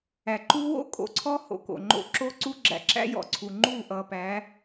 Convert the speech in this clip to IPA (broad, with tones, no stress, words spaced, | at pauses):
æ˨ǃu˦ wo̰˦ kʼo̰˨ǀʰɔ˦ ho̰˨ko̰˨ŋ͡ǃo̰˦ ǁo˦ǀu˦ɡ͡ǁæ̰˨ǁæ̰˦ jɔ̰˨ǀʰu˨ ŋ͡ǃu˦˨ʔʌ˨pæ˨˦